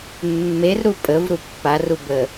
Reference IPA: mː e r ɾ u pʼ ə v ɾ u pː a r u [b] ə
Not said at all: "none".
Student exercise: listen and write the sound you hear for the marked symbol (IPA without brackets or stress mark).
b